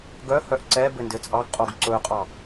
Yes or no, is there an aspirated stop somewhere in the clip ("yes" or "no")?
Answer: no